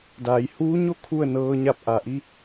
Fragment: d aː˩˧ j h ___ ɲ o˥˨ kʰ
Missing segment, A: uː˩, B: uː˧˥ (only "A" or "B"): B